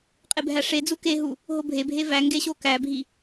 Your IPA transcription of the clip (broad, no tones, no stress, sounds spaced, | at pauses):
qʼ e bʱ æ ʂ e d͡z u k e ɦ u | ɦ o bʱ e bʱ e v æ ŋ ɡ e ɕ o k æ bʱ i